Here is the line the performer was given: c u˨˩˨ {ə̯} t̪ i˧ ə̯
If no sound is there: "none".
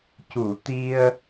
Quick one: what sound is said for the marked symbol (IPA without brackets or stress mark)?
none